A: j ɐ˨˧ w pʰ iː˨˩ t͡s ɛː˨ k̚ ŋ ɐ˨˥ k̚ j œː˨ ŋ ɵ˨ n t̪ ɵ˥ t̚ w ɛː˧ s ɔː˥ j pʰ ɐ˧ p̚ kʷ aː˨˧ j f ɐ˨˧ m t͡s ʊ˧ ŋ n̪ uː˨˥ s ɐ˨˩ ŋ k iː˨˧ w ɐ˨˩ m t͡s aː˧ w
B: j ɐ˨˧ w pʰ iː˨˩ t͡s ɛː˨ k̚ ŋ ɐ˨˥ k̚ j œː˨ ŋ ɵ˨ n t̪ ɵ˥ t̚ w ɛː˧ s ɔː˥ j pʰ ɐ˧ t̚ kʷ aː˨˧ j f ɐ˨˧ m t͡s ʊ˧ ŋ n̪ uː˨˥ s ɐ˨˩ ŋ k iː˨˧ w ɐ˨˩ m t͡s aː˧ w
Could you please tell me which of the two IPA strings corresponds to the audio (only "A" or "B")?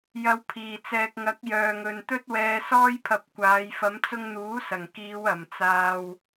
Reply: A